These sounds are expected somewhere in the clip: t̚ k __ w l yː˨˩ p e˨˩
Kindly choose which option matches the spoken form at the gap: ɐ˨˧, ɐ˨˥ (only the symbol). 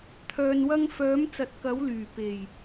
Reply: ɐ˨˥